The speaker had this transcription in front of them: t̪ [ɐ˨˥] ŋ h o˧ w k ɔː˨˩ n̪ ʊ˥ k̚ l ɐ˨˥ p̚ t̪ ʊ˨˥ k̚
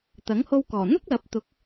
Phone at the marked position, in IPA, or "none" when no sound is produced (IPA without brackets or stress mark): ɐ˨˥